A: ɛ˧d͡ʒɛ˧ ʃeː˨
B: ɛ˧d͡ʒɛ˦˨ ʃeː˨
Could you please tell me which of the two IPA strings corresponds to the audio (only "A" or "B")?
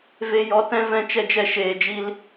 A